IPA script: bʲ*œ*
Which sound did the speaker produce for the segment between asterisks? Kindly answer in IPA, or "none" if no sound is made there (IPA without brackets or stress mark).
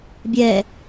ɛ